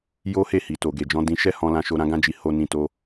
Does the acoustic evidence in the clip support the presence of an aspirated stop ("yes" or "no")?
no